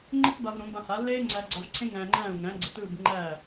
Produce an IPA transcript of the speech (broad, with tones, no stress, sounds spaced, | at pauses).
ŋ͡ǃ ɘ˥ t b a˧ v ɾ õ˩˥ b ã˧ h a˩˥ lː eː˥ ŋ͡ǀ æ˧ ɡ͡ǀ a˧ v ǀʰ ẽ˥ ŋ æ̃ː˧ ŋ͡ǃ æ̃ː˥˩ u̯ ŋ æ̃˩˥ ɡ͡ǀ ɘ˩˥ t ɯː˥˩ b ŋ͡ǃ æː˥˩